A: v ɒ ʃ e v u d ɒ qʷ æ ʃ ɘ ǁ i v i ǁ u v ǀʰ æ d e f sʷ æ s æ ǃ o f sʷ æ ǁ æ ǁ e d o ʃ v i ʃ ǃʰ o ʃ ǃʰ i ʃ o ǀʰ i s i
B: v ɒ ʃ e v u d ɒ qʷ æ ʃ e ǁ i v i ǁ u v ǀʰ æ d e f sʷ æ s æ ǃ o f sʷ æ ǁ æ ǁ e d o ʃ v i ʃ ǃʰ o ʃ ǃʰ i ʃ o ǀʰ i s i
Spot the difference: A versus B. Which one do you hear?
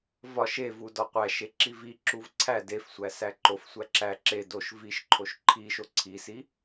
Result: B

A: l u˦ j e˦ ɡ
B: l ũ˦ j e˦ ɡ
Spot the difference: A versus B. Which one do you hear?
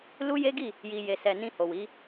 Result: A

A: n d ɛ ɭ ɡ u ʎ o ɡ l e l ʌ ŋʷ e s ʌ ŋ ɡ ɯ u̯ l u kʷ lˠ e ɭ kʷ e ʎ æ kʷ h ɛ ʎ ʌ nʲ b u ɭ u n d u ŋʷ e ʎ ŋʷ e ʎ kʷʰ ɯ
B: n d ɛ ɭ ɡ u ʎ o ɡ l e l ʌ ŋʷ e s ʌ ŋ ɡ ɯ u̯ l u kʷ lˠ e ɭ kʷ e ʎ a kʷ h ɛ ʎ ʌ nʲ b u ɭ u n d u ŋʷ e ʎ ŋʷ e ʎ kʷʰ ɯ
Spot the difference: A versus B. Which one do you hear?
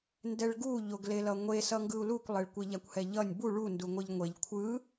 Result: B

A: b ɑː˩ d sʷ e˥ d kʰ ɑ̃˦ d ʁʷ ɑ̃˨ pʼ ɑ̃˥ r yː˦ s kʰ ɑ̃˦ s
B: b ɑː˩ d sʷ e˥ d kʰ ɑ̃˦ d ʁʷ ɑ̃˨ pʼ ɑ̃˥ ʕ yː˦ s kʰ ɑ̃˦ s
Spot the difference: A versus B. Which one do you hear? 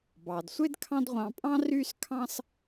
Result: A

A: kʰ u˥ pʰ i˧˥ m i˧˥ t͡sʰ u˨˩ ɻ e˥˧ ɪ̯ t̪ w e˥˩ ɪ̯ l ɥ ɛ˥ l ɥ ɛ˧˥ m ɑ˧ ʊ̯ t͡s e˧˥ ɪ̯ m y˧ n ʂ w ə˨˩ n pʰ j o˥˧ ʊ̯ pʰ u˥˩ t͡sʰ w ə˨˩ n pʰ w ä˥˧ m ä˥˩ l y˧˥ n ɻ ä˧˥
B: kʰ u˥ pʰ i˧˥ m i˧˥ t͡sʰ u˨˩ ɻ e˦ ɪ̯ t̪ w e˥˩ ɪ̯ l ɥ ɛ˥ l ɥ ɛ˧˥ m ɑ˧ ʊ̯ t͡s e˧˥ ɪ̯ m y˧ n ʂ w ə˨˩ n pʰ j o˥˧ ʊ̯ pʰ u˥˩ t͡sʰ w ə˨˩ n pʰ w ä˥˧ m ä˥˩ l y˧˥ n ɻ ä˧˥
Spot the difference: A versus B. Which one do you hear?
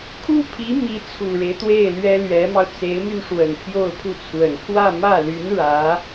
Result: B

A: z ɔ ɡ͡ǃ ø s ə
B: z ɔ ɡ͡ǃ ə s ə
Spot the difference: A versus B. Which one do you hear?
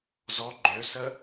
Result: A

